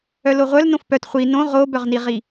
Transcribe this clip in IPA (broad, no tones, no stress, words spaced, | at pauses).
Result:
œloʁʷœl nõfpœt χʷi nõ ʁobœʁniʁi